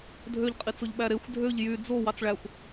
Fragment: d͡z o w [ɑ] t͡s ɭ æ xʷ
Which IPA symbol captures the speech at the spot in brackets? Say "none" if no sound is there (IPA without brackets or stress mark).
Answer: ɑ